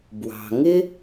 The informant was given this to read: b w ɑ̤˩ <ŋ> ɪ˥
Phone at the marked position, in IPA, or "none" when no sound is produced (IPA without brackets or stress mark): ŋ